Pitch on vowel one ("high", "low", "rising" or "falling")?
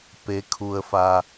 rising